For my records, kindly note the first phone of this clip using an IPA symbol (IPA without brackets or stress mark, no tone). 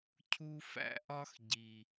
cʰ